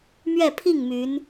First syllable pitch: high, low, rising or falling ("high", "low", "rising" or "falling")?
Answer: falling